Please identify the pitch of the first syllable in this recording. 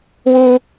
high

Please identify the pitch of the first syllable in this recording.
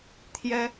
high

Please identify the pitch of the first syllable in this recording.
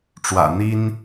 low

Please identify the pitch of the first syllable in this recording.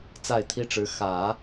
falling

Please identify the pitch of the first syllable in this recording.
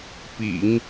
low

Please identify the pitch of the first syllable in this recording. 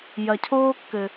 low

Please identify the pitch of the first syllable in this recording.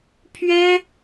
high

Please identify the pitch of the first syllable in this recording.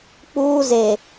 high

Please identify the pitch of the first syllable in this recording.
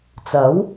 rising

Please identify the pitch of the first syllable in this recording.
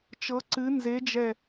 rising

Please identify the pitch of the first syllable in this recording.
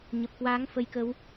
low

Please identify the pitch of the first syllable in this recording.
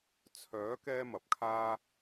rising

